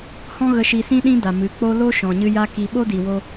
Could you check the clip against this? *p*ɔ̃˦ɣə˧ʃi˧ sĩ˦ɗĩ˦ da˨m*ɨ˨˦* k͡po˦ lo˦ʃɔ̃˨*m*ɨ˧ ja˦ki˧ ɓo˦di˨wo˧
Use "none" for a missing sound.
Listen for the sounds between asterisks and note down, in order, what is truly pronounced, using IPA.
h, ɨ˨˦, ɲ

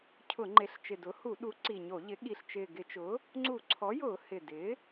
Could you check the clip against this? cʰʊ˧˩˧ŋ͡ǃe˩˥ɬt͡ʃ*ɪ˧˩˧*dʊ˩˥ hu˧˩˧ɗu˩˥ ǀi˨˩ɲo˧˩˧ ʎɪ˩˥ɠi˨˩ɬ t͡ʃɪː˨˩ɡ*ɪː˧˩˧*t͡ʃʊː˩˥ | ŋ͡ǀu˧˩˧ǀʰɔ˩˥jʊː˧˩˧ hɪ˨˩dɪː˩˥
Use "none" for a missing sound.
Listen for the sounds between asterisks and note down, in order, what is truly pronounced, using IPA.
ɪ˨˩, ɪ˧˩˧

